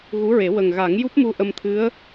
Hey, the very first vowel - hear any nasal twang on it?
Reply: no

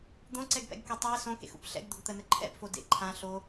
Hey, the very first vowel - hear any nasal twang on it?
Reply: yes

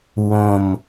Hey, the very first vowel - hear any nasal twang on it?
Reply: yes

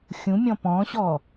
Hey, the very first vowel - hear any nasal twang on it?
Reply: yes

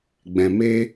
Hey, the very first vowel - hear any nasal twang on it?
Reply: yes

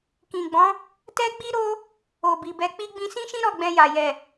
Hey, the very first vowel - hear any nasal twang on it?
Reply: yes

